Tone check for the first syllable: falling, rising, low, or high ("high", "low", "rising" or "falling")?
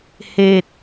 low